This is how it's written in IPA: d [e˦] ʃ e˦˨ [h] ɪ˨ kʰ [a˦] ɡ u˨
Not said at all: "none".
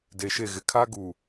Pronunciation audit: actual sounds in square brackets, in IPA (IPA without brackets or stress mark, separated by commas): e˨, ɣ, a˦